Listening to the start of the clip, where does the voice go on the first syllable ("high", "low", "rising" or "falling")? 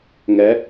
rising